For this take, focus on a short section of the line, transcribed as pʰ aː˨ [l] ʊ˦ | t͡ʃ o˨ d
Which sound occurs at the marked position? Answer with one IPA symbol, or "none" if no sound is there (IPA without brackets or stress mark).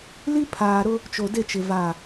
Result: ɾ